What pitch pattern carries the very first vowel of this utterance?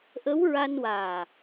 rising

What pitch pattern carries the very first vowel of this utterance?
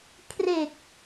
low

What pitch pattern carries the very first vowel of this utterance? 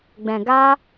low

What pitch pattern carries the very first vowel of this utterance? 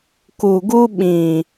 low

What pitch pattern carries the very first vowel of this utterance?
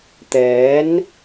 rising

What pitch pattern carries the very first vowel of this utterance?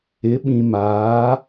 rising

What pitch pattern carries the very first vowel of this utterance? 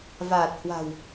low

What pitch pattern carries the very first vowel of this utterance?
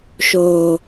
low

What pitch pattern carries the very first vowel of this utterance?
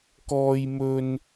high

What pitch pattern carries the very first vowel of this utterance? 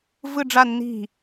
falling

